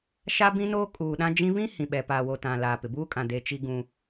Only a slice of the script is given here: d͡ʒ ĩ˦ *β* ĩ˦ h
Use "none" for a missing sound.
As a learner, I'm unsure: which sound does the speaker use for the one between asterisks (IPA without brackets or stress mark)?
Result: β